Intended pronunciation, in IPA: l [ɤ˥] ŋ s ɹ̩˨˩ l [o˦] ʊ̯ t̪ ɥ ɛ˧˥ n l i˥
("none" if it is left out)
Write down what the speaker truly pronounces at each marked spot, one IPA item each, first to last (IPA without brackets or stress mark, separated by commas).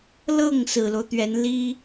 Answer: ɤ˥˩, o˦